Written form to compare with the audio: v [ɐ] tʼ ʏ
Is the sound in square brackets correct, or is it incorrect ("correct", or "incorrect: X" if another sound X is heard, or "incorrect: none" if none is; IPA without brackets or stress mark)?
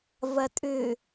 correct